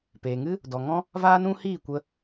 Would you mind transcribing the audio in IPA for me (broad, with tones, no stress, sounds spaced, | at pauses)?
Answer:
p eː˨ ŋ ɨ˦ | d ɔ˨ ŋ ɔ̃˦ | v aː˦ n ũ˦ h iː˦˨ kʷ ə˧